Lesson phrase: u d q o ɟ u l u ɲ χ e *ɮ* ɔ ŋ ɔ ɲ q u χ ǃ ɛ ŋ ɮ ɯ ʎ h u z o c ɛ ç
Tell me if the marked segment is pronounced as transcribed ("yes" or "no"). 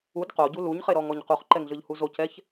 no